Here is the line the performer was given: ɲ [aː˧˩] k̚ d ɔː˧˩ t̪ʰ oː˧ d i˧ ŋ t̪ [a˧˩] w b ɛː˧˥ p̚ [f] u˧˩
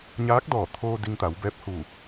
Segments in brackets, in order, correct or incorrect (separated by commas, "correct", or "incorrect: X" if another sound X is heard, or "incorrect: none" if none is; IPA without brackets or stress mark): incorrect: aː˧˥, incorrect: a˩˧, incorrect: h